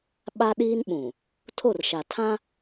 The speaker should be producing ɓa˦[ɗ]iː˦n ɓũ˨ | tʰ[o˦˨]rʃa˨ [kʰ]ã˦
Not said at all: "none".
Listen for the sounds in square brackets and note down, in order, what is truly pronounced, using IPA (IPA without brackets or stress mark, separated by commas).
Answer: ɗ, o˦˨, tʰ